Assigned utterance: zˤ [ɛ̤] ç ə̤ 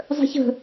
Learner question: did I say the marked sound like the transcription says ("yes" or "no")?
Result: no